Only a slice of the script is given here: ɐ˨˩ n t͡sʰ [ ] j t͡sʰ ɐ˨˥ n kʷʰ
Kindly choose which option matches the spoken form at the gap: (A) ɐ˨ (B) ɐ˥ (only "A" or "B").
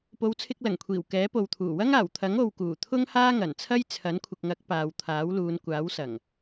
B